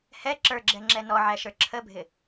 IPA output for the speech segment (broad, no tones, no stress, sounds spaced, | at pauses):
h ɛ ǁ ə˞ ɡ͡ǁ ɛ ŋ͡ǁ ɛ n ɔ ʕ æ ʃ ə˞ ǁʰ ə bʱ ɪ